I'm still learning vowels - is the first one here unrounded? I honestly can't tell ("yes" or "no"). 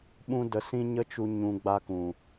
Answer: no